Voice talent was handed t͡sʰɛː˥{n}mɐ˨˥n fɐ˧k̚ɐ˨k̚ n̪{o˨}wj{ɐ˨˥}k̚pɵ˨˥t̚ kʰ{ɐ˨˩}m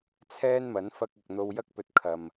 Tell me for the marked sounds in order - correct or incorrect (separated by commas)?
correct, incorrect, incorrect, incorrect